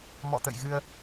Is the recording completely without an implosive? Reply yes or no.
yes